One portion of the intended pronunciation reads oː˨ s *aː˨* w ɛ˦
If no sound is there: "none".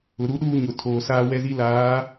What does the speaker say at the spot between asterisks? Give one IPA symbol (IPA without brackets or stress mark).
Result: aː˦